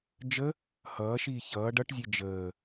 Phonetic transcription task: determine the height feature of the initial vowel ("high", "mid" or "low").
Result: mid